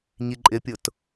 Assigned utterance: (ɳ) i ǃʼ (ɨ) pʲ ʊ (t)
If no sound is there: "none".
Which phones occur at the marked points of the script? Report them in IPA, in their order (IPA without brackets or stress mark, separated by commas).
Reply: ɲ, ɪ, t